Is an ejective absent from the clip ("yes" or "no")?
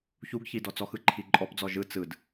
no